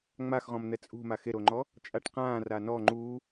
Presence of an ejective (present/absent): present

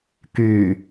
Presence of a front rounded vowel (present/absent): present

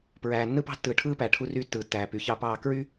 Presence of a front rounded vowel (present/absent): present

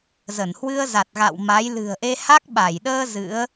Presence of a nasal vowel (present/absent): absent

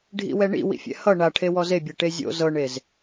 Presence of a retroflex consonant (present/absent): present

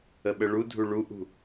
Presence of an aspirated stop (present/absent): absent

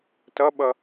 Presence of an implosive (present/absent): present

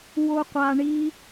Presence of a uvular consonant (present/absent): present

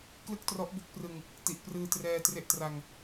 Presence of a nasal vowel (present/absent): absent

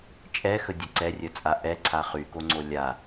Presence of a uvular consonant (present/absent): present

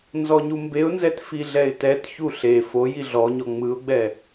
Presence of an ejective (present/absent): absent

